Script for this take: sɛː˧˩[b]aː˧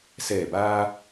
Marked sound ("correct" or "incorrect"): correct